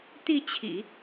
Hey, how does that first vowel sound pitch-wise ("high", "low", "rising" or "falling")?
falling